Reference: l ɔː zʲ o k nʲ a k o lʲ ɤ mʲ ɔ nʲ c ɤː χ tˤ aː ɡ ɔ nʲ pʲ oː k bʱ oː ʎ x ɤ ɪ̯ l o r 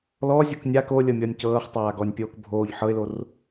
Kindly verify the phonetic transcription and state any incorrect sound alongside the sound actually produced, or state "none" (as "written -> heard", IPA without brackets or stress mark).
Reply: x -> ħ